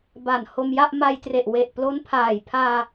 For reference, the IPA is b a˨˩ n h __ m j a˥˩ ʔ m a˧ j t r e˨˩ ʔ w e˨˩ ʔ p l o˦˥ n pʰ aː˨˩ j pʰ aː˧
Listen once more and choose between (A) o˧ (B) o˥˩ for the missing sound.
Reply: A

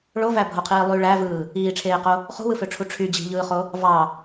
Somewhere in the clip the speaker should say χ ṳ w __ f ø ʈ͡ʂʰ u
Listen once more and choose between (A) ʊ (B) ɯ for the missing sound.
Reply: B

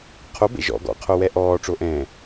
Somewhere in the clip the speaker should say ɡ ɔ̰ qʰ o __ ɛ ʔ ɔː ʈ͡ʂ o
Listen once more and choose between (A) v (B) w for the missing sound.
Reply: B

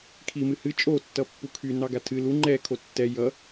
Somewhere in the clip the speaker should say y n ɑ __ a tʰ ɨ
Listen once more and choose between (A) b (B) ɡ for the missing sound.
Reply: B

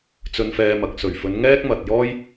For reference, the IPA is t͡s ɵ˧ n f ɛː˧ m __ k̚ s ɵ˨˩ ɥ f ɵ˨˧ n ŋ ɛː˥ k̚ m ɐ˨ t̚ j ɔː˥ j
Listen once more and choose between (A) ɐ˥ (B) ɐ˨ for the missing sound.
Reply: B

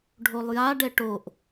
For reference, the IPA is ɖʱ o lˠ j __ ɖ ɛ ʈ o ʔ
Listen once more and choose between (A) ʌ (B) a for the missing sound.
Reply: B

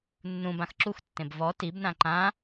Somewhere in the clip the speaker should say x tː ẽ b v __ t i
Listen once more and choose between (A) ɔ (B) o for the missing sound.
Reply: A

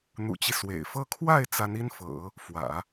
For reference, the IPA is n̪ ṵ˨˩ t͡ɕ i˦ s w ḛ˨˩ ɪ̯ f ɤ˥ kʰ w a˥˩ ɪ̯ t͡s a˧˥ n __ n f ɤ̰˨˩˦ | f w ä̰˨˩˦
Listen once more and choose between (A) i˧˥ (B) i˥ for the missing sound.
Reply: B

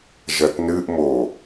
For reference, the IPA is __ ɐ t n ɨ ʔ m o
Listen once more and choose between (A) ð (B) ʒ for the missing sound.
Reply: B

